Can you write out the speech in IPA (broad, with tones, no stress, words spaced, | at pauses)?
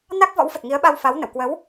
na˦˥k̚ vɔ̰˧˥wfə˨˩t̚ŋi˨˦ə̯ɓa˧w fa˨˦wnə̰˧˨w kwə˨˦w